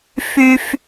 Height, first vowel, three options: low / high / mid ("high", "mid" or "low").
high